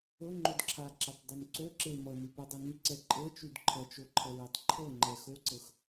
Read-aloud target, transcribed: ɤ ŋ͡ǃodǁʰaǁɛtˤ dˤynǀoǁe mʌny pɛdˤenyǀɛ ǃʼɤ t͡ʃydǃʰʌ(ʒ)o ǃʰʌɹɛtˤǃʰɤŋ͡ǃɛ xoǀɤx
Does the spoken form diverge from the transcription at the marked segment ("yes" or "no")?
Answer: yes